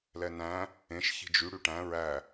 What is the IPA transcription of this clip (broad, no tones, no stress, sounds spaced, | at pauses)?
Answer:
l ɛ n æ̃ | ẽ ʃ ç i̤ d͡ʒ y ɽ y ʈ æ̃ ɹ æ